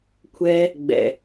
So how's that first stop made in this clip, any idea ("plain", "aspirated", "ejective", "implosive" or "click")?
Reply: aspirated